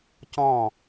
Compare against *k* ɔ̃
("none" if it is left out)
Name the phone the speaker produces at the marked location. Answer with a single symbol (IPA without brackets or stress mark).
c